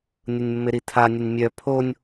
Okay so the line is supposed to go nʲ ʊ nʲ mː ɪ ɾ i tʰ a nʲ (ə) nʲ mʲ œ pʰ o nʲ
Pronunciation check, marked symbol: correct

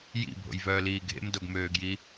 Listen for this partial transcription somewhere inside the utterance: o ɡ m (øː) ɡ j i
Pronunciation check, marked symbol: correct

